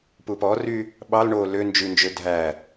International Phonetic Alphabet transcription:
p u p ɔ r y | ɓ ɑ l ɳ o l ø n d͡ʒ ʉ n d͡ʒ ø dʱ æ

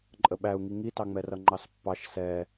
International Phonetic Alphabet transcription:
ǃʼ ə ɓ æ u̯ ŋ i ŋ i t ɑ ŋ͡m ɛ r ʌ ŋ͡ǃ ɑ s pː ɑ ʃ s ɛ

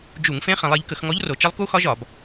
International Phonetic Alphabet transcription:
d͡ʒ u˧˩˧ ŋ f ẽ˧˥ χ ẽ˩˧ lˠ e˩˧ ʎ k ə˧˩˧ x ŋ ɔ˧˥ ʎ r o˩˧ t͡ʃ ə˧˥ lˠ k u˧˥ x ɒ˧˥ ʒ ɒ˧˩˧ b

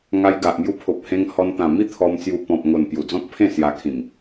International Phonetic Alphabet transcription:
ŋ a˧ j ɡ a˨ ʔ m j u˧ pʰ o˨ p̚ h ẽ˧ ŋ h ɔ˧ n t̪ ã˨˩ m i˥˧ t̪ʰ ɔ˧ m t͡s j u˧ p ɔ̃˨ p̚ ŋ o˨˩ n p j u˨˩ d͡z ɔ̃˦ k̚ pʰ ẽ˥˧ s j a˧ kʰ ĩ˨˩ m

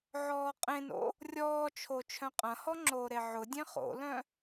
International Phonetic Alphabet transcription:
ʕ ɔː qʼ ẽ n o̰ | rʲ ɔː t͡ʃʰ o t͡ʃʰ œ̃ qʼ ɐ̃ h ɔ ŋ͡ǁ oː ɾ e ʕ ʊ dʲ ẽ χ o̰ l œ̃

